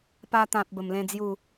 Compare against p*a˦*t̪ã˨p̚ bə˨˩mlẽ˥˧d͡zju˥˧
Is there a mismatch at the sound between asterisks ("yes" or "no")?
yes